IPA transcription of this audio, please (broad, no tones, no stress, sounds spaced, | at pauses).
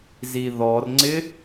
z i ð ɔ r ŋ͡ǀ ɪ